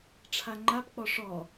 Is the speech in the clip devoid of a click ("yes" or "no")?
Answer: no